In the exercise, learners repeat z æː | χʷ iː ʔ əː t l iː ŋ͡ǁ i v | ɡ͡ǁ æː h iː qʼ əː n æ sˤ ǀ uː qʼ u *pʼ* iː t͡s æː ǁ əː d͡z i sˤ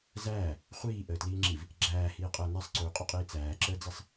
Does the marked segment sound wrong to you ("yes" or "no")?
yes